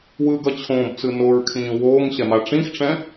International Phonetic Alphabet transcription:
w ɯ ɡ ʌ t͡ɕʰ õː b t͡s ɯ n o ɹ kʰ ĩː w oː ŋ ɕ ɛ m a ʈ͡ʂ ĩ x ʈ͡ʂ ɛ̃

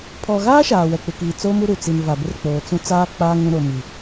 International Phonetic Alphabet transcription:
pʰ ɔ˨ ɣ aː˦ ʃ aː˨ w ɛ˨ k͡p ɪ˨ k iː˨ t͡s o˦ m u˦ ɾ u˨ t͡s i˨ n v a˨ b ɪ˦ r k͡p oː˨ t͡s ũ˦ t͡s aː˦ k͡p aː˦ ŋ ũ˦ ɾ o˨ m i˨

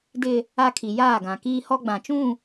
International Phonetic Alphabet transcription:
d ɪ˦ | a˦ kʰ i˨ j aː˦˨ ɡ ã˨ k iː˦ h ɔ˦ ɡ͡b ã˨ t͡ʃ ũ˦˨

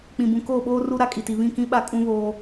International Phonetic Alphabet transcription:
k͡p ĩ˨ b ũ˨ k oː˦˨ ɓ oː˦ r u˦ ɾ a˦ kʼ i˨ t i˨ β ĩ˦˨ k ĩ˦ ɓ a˦ kʼ ũ˦ β oː˦

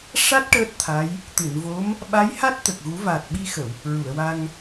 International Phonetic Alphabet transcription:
ʂ a˦˥ t̚ ʈ əː˦˥ t̚ t̪ʰ a˧˥ j | t̪ ɨ˨˩˨ n v o˧˥ m | ɓ a˧˥ j h a˦˥ t̚ t̪ ə˨˩ k̚ ɣ u˨˩˦ v a˨˩ t̚ ɓ i˧ x ə˨˩˨ w | ɹ u˨˩˨ ə̯ w a˧ ŋ

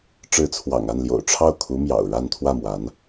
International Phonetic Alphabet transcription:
ʈ͡ʂ ɻ̩˧˥ t͡sʰ w ɑ̰˨˩ ŋ a˥˩ n l j o̰˨˩ ʊ̯ ʈ͡ʂʰ ɑ˥˩ ʊ̯ kʰ u˧˥ m j ɑ̰˨˩ ʊ̯ ɻ a˥˧ n t̪ʰ w ä˥˩ m w a˧˥ n

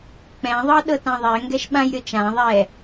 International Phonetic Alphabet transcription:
k͡p ɛ̃ ðˤ ɤ ɗ ɤ t ã ðˤ ɛ ŋ ɡ ɛ ʃ ɓ ã j ɾʲ ɤ t͡ʃ ã ðˤ ɛ

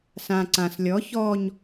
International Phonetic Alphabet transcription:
s ã ǀ ã s lʲ ɔ ç ɔ ɲ

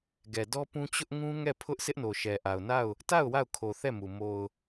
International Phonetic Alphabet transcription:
ɡ ɛ˨ d ɔ˦ p ũ˦ t͡ɕ ʊ˦ ʔ ŋ ũ˦ ŋ ɛ˦˨ pʰ ʊ˦ ʔ sʰ ɪ˦ ʔ n o˨ ʃ ɛ˨ ʔ a˨ ʊ̯ n a˦˨ ʊ̯ | t a˦˨ ʊ̯ w a˦˨ ʊ̯ kʰ o˨ θ ɛ˦˨ m u˨ m o˨ ʊ̯

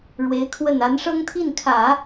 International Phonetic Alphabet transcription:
ɻ w e˧˥ ɪ̯ kʰ w ə˥˩ n a˧˥ n ʂ ɤ˥ ŋ t̪ʰ i˥˩ n kʰ ä˨˩˦

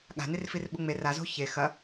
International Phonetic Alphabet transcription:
ɠ a̤ n i r f i r ɓ u ŋ͡m e r a z o̤ ç e x ɐ

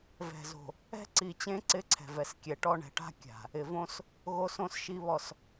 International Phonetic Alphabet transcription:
v ɛ̤˨ z o̤˨ | ɛ̤˦ ǀ i˨ t͡ɕ ẽ˦ ǀ ɪ˦ ǀʰ ɛ̤˨ v ɛ˨ s kʲ ɛ˨ ʈ ɔ˦ ɳ ɛ̤˨ ʈ a̤˦ kʲ a̤˨ | ɪ˨ v õ˦ s | ɣ o˦ s õ˦ s ʃ i˦ β ɔ˦˨ s

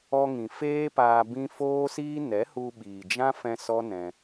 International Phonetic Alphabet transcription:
ɔ˧ ŋ ĩ˨ f eː˦ p aː˧ b ĩ˦ f oː˦ s iː˦ n ɛ˨˦ h u˧ ɓ iː˨ d͡ʒ ã˦ f ɛ̃˧ s ɔ˦ n ɛ̃˧

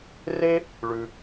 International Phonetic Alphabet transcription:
r e˦ | ɭ ʉ˧

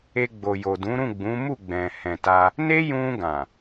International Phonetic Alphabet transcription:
e˧ ɡ͡b o˨ j o˨ d ũ˨˦ ɾ ũ˦˨ ɡ͡b ũ˨˦ m u˦˨ ɡ͡b ɛ̃˨ h ɛ̃˨ t a˧ | n e˦ j ũ˧ ɡ ã˨

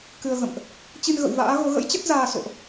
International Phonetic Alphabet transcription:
k ɨ˧ ə̯ ɣ ə̰˧˨ m ʔ | t͡ɕ i˧ n ɣ ə̰˧˨ w v a̰ː˧˥ ɣ o˨˦ ɣ ə̰˧˥ j t͡ɕ ə˦˥ t̚ z aː˧ s o̰˧˨ ʔ

